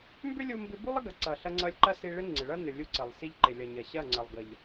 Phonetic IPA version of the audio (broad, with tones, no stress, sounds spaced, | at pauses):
m b ʏ˦ lʲ u˦ m b ɪ˦ b u˦ lˠ ə˦ ɡ ɐ˨ ǀ ʌ˨ ɬ ɐ˧ ŋ͡ǀ ʌ˧ lʲ ǃ ɐ˦ s i˧ ɭ ɪ˦ ŋ͡ǀ ɪ˨ ɭ ʌ˦ n ʏ˨ lʲ u˧ ǀ ə˨ lˠ s i˧ ʎ ǃ ɪ˨ lʲ ʌ˨ ɲ ɐ˨ ɕ ɐ˦˨ ŋ͡ǀ ɐ˨ lˠ ɡ ʌ˨ ʎ